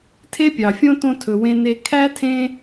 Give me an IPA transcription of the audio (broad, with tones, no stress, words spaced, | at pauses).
tʰe˥pʲɑ˩fʲõ˥tõ˦ tʰɵ˨wẽ˦ne˦ kʰæ˥tʰẽ˦